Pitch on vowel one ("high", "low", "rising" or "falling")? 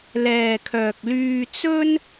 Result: low